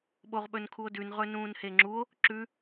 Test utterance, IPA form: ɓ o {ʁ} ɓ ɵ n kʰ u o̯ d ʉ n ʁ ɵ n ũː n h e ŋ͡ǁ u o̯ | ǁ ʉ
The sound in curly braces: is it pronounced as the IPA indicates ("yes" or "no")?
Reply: yes